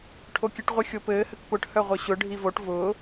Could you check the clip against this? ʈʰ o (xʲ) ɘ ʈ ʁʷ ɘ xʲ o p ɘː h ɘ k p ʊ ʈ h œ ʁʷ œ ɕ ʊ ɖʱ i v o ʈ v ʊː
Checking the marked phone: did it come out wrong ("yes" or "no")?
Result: yes